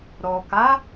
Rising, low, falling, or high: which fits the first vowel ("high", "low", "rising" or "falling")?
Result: low